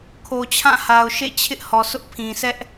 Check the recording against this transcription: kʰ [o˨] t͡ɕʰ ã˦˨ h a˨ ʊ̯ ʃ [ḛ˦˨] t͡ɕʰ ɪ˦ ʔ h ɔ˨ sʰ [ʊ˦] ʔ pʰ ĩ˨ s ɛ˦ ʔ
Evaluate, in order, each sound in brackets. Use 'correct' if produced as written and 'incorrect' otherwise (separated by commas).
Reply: correct, correct, correct